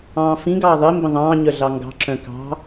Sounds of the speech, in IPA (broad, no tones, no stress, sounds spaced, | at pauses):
ɑ̃ː f ĩ ɡ ɑː ðˤ i m b ə̃ ðˤ ɑ̃ː ɲ œ ɮ ɑ ŋ ɡ ɑ̤ ǁ œ̃ k ɑ̤